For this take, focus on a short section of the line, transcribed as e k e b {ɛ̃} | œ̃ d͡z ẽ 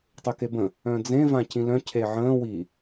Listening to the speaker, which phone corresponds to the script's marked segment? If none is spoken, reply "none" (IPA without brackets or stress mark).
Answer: ə̃